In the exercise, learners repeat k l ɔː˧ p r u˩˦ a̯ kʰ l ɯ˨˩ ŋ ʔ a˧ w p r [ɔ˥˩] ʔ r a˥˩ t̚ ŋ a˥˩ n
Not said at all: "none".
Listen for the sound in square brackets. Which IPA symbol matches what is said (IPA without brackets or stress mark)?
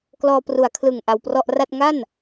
ɔ˥˩